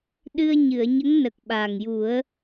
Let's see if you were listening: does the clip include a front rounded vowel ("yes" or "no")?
no